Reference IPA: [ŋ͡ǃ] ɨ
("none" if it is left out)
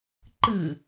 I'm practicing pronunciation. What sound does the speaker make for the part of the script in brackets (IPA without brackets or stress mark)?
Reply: ǃ